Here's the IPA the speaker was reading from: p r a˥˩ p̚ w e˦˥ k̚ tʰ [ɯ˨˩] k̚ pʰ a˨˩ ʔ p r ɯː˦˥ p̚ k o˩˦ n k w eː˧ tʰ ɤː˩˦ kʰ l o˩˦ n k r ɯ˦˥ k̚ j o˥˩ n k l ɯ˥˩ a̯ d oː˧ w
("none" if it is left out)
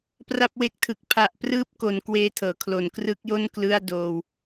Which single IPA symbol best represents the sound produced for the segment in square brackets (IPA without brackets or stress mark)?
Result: ɯ˨˩